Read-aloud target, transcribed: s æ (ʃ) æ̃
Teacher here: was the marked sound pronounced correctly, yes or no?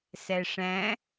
no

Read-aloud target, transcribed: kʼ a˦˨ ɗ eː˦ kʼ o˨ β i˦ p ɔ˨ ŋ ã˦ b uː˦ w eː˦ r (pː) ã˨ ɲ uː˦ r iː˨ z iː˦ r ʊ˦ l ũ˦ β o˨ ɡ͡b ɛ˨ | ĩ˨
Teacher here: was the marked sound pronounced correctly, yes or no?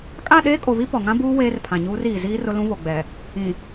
no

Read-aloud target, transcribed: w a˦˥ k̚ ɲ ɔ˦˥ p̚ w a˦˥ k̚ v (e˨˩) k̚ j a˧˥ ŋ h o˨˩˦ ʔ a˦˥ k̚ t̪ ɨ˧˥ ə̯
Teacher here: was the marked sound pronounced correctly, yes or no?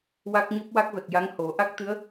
no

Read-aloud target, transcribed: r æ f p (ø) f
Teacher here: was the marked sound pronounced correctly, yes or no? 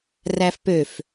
yes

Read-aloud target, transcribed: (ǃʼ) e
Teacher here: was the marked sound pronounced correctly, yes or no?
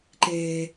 no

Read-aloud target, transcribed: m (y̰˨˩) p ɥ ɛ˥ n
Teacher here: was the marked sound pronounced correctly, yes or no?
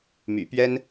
yes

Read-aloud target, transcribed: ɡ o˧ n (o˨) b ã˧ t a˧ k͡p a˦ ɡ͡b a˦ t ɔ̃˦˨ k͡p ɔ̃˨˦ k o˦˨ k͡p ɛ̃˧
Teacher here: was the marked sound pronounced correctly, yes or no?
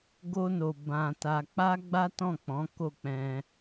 yes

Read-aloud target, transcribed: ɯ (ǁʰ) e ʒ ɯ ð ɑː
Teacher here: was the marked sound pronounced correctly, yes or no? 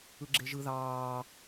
no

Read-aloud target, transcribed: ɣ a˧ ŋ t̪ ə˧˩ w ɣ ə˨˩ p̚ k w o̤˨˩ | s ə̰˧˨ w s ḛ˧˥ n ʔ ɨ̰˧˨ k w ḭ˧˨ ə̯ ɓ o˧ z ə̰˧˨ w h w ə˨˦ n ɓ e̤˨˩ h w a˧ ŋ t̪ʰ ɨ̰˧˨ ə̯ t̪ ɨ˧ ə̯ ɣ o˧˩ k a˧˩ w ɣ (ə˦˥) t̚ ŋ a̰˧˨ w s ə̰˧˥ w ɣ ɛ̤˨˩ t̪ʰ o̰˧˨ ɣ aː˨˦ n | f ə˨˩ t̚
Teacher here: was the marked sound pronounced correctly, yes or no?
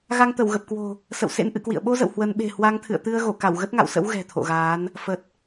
yes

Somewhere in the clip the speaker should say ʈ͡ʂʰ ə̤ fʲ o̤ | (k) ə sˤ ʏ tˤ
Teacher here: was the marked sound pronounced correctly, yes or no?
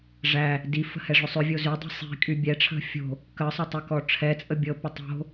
yes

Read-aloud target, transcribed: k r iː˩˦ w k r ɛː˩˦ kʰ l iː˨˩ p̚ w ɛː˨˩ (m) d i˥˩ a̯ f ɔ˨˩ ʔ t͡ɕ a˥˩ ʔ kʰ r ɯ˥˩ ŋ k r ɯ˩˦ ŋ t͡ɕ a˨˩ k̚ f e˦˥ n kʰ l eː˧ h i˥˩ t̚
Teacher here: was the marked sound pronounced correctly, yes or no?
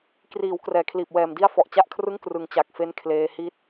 yes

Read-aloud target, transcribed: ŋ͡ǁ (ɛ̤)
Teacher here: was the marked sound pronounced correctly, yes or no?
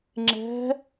yes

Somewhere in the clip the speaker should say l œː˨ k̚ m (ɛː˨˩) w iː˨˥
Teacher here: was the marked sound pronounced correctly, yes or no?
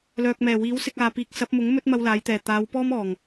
yes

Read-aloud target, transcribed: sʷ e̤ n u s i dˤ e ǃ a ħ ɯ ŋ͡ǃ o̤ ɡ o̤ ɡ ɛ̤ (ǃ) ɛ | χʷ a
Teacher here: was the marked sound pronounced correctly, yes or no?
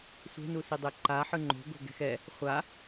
no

